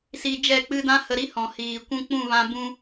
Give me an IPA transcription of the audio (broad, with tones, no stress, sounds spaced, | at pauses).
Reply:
s i˧ d͡ʒ ɛ˦˨ k͡p ɨ˧ d ã˦ h ə˧ ɾ i˦ h ɔ̃˨ h iː˨ kʷ ũ˦ k͡p ũ˦˨ v ã˧ b ũ˦